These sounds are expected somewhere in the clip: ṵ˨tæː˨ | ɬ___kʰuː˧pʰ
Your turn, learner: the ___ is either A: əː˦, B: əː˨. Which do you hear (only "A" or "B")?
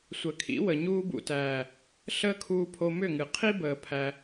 A